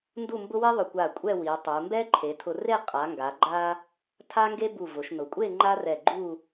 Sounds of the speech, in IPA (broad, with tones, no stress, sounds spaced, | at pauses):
n d u˥˧ m b ʊ˥ w i˥ ðˤ ʊ˧˩ kʷ a˧˩ kʷʼ ɛ˥˧ w i˩˧ tˤ u˩˧ m b ɛ˥ ǃʰ e˩˧ tʰ ʊ˧ r e˥˧ qʼ a˩˧ ŋ ɡ a˩˧ ɡ͡ǃ a˧ | tʰ a˥ ŋ ɡ e˥ b u˧˩ v ʊ˩˧ ʃ n ʊ˩˧ kʷʼ e˥˧ ŋ͡ǃ a˥ r ɛ˧˩ ɡ͡ǃ u˥˧